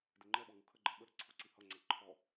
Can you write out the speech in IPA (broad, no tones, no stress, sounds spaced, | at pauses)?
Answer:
d ɪ ŋ͡ǃ ɛ ɓ ɔ ŋ u kʰ ə ɡ͡ǃ ɛ ɓ ə ɾ ə ǀʰ ʊ ǀ i h ʌ ŋ͡ǀ æ ǃʰ ɔ